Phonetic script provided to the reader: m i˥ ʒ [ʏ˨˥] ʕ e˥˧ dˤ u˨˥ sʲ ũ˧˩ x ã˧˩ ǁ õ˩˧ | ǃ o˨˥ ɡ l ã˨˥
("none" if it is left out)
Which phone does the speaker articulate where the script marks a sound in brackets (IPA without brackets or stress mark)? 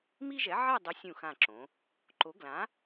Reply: ɛ˨˥